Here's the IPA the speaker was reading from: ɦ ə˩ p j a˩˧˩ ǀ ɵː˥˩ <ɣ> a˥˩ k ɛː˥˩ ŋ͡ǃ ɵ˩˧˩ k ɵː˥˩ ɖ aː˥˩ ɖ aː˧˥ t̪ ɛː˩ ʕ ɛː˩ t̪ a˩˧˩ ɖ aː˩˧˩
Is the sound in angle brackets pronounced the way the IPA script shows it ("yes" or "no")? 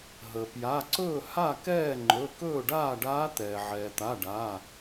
no